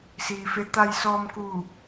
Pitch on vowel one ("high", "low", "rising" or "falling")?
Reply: low